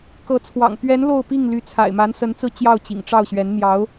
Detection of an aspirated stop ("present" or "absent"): present